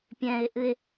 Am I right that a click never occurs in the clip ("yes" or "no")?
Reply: yes